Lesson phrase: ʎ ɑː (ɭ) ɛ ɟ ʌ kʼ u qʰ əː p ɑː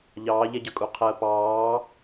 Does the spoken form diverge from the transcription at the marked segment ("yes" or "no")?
yes